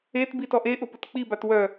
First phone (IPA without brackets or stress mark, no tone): e